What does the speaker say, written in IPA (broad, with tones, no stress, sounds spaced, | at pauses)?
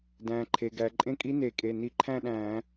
d æ̃ː˩ ǃʰ e˩ ɡ æ˩ ǃʼ ẽ˧˥ kʼ i˧˥ n e˧˩˧ kʼ e˩˧˩ n i˧˩˧ ǃʰ æ̃˥˧ ɗ æ̃ː˧˩˧